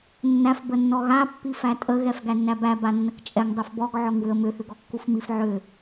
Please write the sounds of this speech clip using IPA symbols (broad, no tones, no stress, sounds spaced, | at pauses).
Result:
nː æ f b ə nː ɔ ɣ a pː i f æ tʼ ə ɣ ɛ f ɡ æ nː æ b æ b a nː ə k t͡ʃʼ ɛ ŋ dˤ ɛ f b ɔ ɡ ʕ ɔ ŋ w ʏ ə̯ m ʏ θ ʏ ɡ ɔ kː u f m i f ʕ ʏ